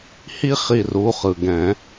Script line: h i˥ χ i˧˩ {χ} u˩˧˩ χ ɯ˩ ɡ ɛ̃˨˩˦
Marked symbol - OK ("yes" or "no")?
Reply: no